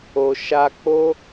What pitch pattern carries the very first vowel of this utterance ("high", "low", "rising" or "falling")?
low